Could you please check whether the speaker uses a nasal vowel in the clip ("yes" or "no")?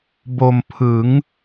no